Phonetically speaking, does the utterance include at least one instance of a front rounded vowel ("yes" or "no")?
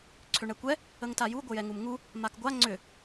yes